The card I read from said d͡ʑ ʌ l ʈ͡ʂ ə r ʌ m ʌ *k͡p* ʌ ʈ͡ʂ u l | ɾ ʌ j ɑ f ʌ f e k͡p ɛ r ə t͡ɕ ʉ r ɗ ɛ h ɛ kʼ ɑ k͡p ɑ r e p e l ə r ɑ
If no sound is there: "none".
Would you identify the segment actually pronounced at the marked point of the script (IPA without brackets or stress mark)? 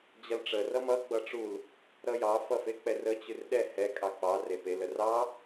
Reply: ɡ͡b